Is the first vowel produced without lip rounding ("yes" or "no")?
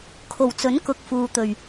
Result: no